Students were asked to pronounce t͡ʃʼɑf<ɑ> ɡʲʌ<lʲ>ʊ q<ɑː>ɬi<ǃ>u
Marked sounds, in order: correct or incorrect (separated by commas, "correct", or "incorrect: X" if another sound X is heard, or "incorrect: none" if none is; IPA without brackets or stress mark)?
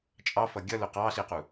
incorrect: ʌ, incorrect: l, correct, incorrect: q